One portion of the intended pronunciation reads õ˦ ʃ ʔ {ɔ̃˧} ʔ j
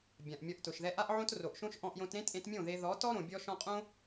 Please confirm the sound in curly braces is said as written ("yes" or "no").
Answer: yes